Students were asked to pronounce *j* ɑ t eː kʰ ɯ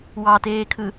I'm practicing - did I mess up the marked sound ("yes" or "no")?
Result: yes